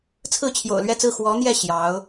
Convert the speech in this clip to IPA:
t͡sʰɹ̩˥˩t͡ɕʰjo̰˨˩ʊ̯lɥɛ˥˧t͡sɹ̩˥˩ xwɔ˧˥n̪jɛ˥˩ ɕjɑ˧˥ʊ̯

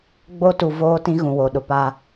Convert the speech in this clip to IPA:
ɡ͡bo˦tu˨ voː˦tĩ˦ ɣũ˨wo˨ɗʊ˨ pa˦

